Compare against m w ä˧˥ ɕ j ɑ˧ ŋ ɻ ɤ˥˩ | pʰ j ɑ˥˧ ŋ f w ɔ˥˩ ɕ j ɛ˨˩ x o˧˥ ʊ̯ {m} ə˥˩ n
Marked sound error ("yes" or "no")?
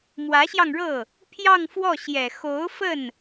yes